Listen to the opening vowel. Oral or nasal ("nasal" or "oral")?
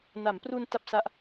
oral